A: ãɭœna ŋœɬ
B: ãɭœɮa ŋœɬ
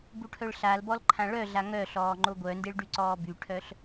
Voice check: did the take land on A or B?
B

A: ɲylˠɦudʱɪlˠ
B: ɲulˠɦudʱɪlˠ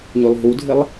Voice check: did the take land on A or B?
A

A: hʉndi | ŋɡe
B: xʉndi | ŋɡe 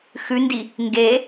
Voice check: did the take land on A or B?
B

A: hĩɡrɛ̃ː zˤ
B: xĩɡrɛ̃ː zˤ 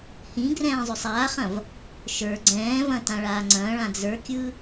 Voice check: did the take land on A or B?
A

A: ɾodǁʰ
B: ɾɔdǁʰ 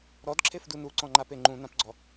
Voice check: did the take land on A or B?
B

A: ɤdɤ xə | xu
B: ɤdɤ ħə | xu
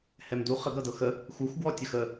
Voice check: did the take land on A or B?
A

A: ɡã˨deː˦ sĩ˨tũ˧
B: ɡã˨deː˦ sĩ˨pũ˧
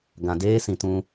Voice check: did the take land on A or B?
A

